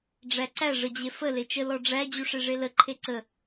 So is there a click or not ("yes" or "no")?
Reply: yes